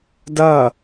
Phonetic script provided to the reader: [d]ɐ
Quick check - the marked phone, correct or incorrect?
correct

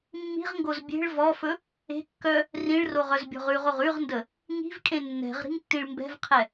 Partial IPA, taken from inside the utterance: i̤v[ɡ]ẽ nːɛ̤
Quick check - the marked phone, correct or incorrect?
incorrect: kʼ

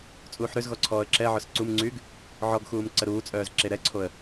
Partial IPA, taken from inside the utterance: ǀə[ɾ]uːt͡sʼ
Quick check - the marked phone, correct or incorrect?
correct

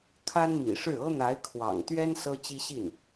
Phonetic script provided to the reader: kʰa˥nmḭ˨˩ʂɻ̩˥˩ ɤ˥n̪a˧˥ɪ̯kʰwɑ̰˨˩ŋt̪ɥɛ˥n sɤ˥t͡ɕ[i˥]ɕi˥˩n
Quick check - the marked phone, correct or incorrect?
correct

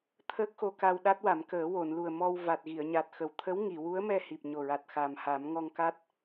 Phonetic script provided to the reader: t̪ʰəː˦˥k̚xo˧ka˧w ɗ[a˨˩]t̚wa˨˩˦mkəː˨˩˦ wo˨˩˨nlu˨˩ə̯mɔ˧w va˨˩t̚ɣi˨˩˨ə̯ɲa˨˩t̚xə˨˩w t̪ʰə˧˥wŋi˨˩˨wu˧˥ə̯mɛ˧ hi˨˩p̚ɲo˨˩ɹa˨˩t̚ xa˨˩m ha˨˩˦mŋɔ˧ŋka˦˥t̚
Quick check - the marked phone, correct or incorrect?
incorrect: a˦˥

